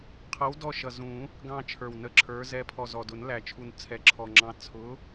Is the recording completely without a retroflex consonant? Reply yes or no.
yes